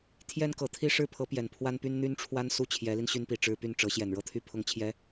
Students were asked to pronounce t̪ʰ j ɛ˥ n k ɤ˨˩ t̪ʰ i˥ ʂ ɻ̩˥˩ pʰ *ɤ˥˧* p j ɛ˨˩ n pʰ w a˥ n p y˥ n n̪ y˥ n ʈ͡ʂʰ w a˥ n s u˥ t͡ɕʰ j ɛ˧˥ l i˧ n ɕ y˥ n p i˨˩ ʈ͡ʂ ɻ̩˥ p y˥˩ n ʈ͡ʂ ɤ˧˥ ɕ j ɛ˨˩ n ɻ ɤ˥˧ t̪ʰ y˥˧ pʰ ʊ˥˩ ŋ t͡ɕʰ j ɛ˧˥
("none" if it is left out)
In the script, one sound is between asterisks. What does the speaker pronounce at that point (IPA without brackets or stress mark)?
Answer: ɤ˧˥